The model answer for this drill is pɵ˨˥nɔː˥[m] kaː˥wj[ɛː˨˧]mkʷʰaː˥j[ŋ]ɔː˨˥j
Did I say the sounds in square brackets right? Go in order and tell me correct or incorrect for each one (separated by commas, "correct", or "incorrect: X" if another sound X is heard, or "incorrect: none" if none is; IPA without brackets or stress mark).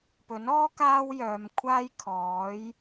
incorrect: none, incorrect: œː˨˧, incorrect: kʰ